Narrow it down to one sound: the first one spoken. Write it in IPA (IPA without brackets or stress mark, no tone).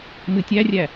m